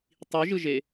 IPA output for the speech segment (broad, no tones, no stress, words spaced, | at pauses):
tˤiʒɯʒe